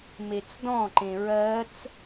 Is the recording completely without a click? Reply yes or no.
no